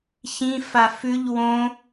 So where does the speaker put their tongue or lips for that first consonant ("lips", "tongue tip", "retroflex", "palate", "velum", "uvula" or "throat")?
palate